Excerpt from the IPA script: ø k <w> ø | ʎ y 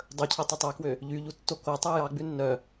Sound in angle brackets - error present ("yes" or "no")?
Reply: no